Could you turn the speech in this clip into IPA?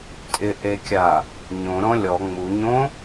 tʼ ɪ ʔ e kʲ a | ɲ õ ɾ ɔ̃ lʲ ɔ ŋ͡m u ɲ õ

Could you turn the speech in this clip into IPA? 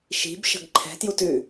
ʃ i̤ b ʃ ə̤ ɡ ǃʰ ɛ̤ t j u t ʉ

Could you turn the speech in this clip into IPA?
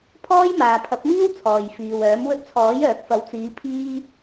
pʰ ɔː˥ j m aː˨ pʰ ɐ˨˥ p̚ m iː˥ w t͡sʰ ɔː˨ j f iː˨ w œː˨˥ m w ɵ˧ t̚ t͡sʰ ɔː˨˥ j œː˨ k̚ f ɐ˨˥ w t͡s iː˨˧ pʰ iː˧

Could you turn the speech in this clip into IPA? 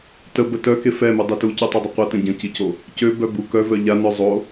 t ə b ə t œ k e f ɛ m u dˤ i t u c y tˤ y dˤ ə qʷ ə t ə̃ ɟ ə̃ c i c o | c ø b œ b u k œ v œ ʎ a n œ zˤ o

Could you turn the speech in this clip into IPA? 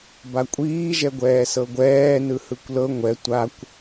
b a kʷʼ iː ʒ ɛ ɡʷ ɛː s ɤ ɡʷ ɛː n ɯ h ɯ kʷ l ɤ ŋʷ ɛ tʷ a kʷ

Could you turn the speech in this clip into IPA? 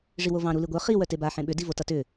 ʐ i w o v ɑ̃ ɾ u l i ɡʷ œ χ i w œ t e b a ħ ẽ ɓ ʏ d i v o t ʌ t ʏ

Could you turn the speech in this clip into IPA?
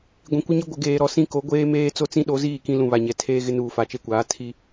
ɡʷ ĩ˨ kʷ ɪ˦ ɲ ɪ˦ ɡʷ ɪ˨ ɡ eː˨ ɾ ɔ˨ s ĩ˦ k o˨˦ ɡʷ eː˦ m eː˦ t͡s o˦ t͡s ĩ˦ ɗ o˨˦ z iː˦˨ k ĩ˦ l ũ˨ β a˨ ɲ ɛ˨ tʰ eː˦ ɣ ɪ˦ n uː˨ f a˨ t͡ʃ e˦ kʷ aː˨˦ tʰ i˦

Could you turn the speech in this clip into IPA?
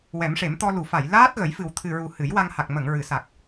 w ɛ˨˩˦ m ʂ e˨˩˦ m t̪ ɔ˧ l u˨˩˨ f a˨˩˨ j l aː˦˥ t̚ ɣ ə˨˩˦ j f ɨ˨˩ w t̪ʰ ɨ˨˩ ɹ u˨˩ h ɨ˨˩˦ j w a˧ ŋ h a˨˩ k̚ m ə˨˩˨ ŋ ɹ ɨ˨˩˨ s a˨˩ k̚

